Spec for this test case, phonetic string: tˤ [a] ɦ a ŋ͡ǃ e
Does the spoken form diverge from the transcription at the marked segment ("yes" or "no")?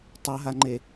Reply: no